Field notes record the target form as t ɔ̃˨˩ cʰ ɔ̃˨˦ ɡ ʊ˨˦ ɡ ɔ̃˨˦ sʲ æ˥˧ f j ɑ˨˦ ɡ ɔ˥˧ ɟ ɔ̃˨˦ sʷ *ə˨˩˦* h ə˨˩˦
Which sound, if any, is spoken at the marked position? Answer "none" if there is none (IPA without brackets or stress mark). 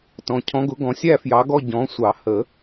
ɑ˨˩˦